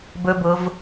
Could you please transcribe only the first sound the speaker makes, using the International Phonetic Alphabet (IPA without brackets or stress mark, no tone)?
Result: b